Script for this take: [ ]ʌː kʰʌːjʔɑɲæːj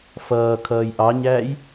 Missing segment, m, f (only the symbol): f